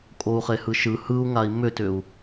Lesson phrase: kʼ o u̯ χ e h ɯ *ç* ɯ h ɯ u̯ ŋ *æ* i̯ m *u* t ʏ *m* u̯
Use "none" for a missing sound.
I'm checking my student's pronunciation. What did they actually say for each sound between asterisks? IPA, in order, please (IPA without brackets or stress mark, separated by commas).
ʃ, a, ʏ, none